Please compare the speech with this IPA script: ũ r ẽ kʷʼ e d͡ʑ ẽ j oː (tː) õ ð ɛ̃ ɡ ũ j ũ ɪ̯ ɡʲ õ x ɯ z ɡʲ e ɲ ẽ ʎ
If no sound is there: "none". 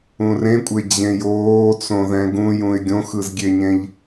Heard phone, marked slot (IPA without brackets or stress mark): t͡s